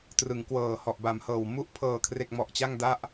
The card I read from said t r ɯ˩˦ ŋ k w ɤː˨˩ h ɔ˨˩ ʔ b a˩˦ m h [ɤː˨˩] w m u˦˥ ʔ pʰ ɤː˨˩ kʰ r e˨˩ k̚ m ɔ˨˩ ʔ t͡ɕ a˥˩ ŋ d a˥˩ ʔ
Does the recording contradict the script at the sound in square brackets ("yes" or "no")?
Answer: no